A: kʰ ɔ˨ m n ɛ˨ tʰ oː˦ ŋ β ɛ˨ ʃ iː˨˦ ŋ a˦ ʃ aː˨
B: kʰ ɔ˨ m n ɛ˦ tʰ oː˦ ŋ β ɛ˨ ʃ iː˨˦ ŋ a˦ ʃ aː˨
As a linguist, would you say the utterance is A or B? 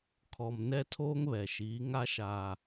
B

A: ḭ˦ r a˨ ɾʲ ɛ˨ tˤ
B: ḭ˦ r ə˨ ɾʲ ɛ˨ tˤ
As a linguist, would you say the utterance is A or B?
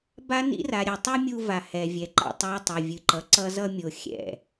A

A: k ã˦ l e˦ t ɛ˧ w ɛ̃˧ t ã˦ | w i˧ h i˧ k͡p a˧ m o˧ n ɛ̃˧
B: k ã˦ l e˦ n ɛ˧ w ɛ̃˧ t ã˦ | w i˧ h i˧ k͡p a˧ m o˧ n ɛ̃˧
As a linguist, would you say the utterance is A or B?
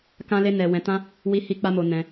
B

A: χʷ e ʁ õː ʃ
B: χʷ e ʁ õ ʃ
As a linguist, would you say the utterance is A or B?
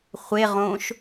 A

